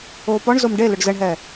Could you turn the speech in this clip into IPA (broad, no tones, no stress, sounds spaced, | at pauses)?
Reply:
oː p ɔ ɳ z o m ɖ e l ɵ ɖ z ə ɳ ɦ ɛ